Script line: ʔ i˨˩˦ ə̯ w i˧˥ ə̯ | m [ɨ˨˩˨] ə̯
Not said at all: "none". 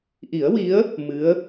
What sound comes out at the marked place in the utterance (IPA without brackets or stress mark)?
ɨ˧˥